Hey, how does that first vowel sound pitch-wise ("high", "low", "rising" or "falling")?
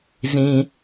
low